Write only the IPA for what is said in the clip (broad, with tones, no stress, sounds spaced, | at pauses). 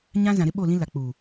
ɲ ã˦ z ã˨ ɾ ɪ˦ ɓ o˦˨ l ĩ˦ l a˨ k͡p u˨